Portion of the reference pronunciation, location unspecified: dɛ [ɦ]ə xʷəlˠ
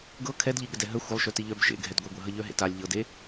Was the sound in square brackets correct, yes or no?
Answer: yes